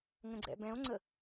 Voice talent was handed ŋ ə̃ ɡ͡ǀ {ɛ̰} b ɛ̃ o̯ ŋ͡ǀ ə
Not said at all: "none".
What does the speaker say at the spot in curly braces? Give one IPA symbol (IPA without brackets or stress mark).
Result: ɛ̰